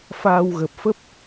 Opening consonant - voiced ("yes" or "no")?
no